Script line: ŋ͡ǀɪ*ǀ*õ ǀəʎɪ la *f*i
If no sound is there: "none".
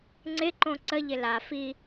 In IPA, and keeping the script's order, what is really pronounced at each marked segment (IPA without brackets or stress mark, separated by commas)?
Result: ǃ, f